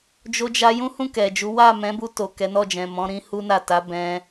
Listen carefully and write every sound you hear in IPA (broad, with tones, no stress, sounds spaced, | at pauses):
d͡ʒ o˧ d͡ʒ a˧ j ũ˦ h ũ˦˨ k ɛ˨ d͡ʒ u˨˦ w a˦˨ m ɛ̃˨˦ b u˧ t o˨ k ɛ˨˦ n ɔ˦˨ d͡ʒ ɛ̃˨ m ɔ̃˨˦ ɾ ĩ˧ h u˦ n a˦˨ t a˨˦ b ɛ̃˧